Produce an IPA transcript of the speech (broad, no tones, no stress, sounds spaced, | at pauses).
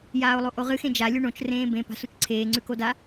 j aː o̯ lˠ o ʔ o ʁ ɨ x ẽ d͡ʒ a lʲ u ɳ õ t͡ʃ r ẽː b ẽ p a̤ s u t͡ʃ ǀʰ eː ŋ͡ǀ ʉ k o d a